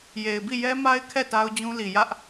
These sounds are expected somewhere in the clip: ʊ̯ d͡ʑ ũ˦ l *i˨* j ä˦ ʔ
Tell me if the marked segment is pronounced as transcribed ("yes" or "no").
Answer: yes